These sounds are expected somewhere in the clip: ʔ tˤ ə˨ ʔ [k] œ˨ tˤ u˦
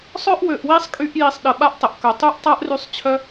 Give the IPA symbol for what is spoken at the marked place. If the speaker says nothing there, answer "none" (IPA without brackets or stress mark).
k